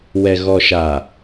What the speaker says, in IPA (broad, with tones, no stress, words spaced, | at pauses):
wɛ˨ ɣɔ˨ʃa˨